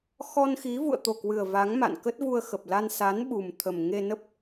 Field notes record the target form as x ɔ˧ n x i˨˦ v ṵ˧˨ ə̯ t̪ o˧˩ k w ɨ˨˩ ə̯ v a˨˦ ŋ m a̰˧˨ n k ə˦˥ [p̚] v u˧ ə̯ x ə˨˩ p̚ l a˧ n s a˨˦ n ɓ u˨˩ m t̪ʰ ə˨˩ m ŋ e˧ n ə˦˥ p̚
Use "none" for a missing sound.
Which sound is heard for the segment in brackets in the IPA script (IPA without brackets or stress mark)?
t̚